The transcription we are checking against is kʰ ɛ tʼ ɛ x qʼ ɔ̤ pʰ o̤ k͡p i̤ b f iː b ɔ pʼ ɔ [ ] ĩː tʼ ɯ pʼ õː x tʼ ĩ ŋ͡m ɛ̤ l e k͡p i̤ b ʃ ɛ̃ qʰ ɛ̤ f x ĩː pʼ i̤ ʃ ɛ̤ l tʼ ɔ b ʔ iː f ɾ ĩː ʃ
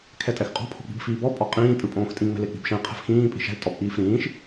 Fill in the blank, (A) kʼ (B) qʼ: B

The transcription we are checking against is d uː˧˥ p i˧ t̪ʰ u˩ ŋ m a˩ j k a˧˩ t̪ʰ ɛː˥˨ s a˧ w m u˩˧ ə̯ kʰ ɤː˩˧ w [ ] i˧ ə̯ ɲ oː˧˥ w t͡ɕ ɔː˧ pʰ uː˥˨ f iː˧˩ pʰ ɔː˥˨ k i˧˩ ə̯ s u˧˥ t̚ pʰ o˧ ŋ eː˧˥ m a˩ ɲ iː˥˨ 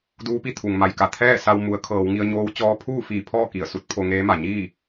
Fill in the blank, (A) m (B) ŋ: B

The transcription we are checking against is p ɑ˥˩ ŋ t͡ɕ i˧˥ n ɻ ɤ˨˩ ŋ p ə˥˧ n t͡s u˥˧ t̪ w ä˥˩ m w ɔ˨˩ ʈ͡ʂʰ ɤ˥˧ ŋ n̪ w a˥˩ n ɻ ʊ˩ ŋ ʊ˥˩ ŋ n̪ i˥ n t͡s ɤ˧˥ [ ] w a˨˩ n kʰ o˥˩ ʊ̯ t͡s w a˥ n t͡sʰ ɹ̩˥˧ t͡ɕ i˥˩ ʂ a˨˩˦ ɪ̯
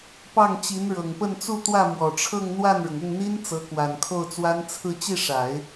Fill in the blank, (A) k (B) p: A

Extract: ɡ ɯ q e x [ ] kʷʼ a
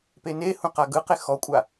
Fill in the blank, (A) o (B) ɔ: B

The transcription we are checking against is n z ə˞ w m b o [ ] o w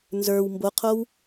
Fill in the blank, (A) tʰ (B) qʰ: B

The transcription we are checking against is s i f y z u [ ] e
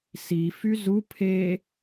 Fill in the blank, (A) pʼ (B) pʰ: B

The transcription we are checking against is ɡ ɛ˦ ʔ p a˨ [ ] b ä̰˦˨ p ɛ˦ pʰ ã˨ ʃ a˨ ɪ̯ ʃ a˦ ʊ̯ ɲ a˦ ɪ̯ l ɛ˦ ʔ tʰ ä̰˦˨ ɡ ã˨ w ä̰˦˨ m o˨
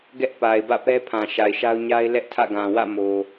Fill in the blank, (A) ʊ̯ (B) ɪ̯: B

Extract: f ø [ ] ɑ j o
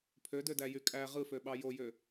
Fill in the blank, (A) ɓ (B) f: A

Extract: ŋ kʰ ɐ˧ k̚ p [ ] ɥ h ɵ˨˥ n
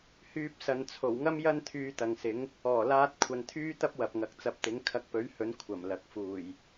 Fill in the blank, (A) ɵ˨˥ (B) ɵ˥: A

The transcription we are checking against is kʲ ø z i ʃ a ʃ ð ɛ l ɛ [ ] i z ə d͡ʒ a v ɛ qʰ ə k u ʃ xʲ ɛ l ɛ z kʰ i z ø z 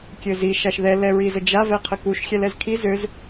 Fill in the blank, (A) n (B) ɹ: B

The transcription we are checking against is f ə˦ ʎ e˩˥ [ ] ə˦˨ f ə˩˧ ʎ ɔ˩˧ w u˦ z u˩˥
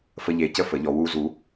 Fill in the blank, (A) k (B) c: B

